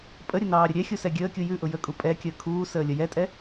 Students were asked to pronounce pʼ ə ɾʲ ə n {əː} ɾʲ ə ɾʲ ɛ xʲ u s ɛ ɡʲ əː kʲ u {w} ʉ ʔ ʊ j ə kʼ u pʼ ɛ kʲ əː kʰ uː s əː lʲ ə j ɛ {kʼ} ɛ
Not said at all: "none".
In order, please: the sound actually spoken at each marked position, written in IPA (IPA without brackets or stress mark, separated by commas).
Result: ɑː, j, tʼ